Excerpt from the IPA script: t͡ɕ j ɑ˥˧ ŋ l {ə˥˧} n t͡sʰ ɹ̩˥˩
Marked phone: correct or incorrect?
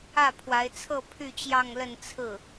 correct